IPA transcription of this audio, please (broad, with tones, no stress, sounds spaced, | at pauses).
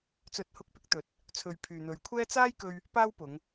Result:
t͡s ɵ˨˥ t̚ h ʊ˧ k̚ p ɪ˧ k̚ t̪ ɵ˨˥ t̚ | t͡sʰ ɵ˨ ɥ pʰ yː˨ n̪ ɵ˨˧ ɥ kʷʰ ɛː˥ t͡s aː˥ j k ɵ˧ ɥ | p aː˥ w p ʊ˨˧ ŋ